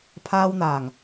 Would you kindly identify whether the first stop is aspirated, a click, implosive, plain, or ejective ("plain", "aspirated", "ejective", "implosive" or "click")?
aspirated